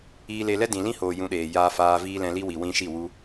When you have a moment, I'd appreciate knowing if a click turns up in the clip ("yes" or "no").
no